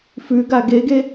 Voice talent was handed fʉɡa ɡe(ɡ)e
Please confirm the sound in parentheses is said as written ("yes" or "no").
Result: yes